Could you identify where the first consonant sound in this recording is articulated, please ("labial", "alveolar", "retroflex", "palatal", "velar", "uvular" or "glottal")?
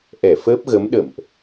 glottal